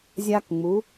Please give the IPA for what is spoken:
zʲ a˥ k ŋ͡m u˧˥

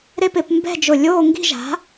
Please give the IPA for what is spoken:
ɾ e˥˨ p ɪ˧˩˧ p m b ɛ̤˥˨ d͡ʒ ʊ˧˩ lʲ oː˥˨ ŋ ɡ i̤˥˨ ʒ a̤˩˥

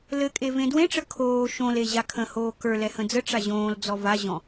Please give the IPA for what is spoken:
l ɘ kʼ e v ẽ d w ẽ ʈ͡ʂ ə kʰ oː ʃ õ l e ʑ a kʰ ə̃ h oː k ə˞ l ɛ h ə̃ d͡z ə ʈ͡ʂ a ʑ õː l d͡z ɔ v a ʑ ɔ̃

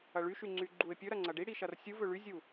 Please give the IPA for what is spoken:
ɐ ɭ y ʃ y ŋ͡ǀ y ɡ͡ǃ u ɪ̯ pʲ ɵ ɾ ɐ ŋ͡ǀ ɐ ɖ i ɽ i ʃ ɐ r sʲ u v ɵ ɭ y zʲ u

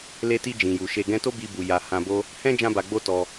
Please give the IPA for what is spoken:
l e˧ t i˧ d͡ʒ ĩ˨ j u˨ ʃ e˨ ɡ ɛ̃˧ t o˦ b i˧ b u˨ j a˨ h ã˨ b o˧ | h ɛ̃˦ d͡ʒ ã˧ b a˨ ɡ͡b o˧ t ɔ˧

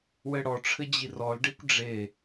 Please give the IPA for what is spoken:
w ɘ ɽ ɔ ʈ͡ʂʰ ɘ d͡ʑ i r ɔ l ɖ e kʷ ɖ͡ʐ e

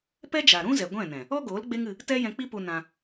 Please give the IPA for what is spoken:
p ɛ˦ d͡ʒ a˨ ɾ ũ˦ z ɛ˨ ɡʷ ɛ̃˦˨ n ɛ̃˨ | ɔ˦ ɡ oː˨˦ l ɡ͡b e˦ ŋ ɨ˧ | t ɛ˦ j ɛ̃˧ k͡p i˦ p u˧ n ã˧

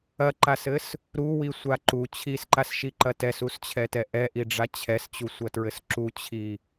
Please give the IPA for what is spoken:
ɐ ǃ a s ɘ s | ɾ u w i sʷ a ǃ u t͡ɕʰ i s ǃ a s ʃ i ǃ ɐ t ɛ s u s t͡ɕʰ ɛ t ɛ ʔ ɛ ʔ i ɖ͡ʐ a t͡ɕʰ ɛ s t͡ɕ u sʷ ɐ t ɹ ɘ s ǁ u t͡ɕʰ i

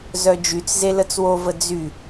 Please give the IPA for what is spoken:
z œ d͡ʒ y t͡s z e l ə t͡s w o v ə d͡z y

